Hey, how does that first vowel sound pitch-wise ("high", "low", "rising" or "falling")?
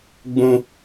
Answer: high